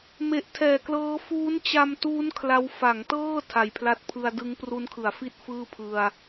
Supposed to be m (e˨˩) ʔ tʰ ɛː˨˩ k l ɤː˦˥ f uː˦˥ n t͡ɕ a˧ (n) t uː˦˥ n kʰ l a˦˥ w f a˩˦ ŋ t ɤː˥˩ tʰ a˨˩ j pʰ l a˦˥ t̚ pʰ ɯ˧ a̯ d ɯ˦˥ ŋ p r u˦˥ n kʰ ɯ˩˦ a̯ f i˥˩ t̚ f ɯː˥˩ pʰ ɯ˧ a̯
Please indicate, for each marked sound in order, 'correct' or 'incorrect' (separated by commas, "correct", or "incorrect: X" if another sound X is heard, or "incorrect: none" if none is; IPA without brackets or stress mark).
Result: correct, incorrect: m